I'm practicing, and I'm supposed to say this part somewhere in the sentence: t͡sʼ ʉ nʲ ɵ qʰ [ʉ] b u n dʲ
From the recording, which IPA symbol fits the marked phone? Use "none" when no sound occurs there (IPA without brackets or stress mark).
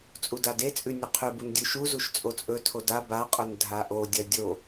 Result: ʉ